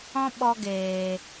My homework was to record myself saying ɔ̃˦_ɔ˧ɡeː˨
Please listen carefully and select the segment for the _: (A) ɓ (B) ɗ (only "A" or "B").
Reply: A